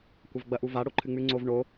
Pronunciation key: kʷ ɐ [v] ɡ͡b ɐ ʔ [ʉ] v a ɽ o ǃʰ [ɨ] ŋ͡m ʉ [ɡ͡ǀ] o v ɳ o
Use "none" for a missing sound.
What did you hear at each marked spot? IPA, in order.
v, u, ɨ, ŋ͡ǀ

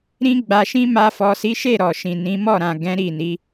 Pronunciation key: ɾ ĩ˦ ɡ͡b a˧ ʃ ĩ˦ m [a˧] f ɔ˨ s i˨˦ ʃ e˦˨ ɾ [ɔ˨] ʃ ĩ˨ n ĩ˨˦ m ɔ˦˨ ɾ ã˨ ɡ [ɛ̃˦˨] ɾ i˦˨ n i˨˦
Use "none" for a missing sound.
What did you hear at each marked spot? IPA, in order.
a˧, ɔ˨, ɛ̃˨˦

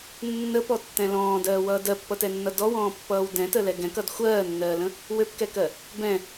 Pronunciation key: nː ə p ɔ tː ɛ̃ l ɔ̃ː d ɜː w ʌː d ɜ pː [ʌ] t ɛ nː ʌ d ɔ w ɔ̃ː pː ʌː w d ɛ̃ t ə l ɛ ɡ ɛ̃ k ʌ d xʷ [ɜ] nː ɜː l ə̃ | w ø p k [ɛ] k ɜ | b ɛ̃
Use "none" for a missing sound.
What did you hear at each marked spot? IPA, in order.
ʌ, ɜː, ɛ

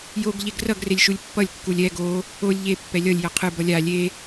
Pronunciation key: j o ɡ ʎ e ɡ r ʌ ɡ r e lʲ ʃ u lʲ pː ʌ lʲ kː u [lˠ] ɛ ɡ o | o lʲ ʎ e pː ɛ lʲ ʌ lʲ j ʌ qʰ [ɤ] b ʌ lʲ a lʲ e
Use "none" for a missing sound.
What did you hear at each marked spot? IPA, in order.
lʲ, ɯ

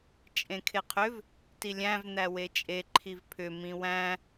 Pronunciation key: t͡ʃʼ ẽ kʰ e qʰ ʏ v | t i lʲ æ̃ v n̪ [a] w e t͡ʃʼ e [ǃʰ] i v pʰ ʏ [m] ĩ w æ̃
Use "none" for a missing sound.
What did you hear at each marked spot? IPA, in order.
æ, ǃʰ, m

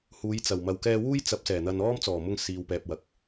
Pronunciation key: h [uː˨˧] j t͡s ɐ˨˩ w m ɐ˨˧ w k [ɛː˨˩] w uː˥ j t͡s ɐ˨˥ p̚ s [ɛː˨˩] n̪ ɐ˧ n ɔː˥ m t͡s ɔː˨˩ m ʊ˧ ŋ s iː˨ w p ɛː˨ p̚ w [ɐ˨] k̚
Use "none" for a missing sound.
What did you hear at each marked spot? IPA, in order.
uː˨˧, ɛː˧, ɛː˨˩, ɐ˨

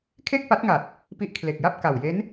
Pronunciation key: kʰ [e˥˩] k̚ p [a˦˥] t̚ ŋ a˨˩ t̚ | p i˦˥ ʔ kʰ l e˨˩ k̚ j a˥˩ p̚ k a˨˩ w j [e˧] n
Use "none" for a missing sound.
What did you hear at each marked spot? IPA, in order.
e˥˩, a˦˥, e˦˥

